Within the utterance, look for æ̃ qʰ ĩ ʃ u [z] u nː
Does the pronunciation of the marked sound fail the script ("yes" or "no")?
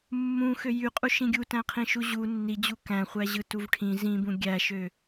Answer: yes